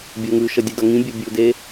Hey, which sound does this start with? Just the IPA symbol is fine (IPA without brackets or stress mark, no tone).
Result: bʲ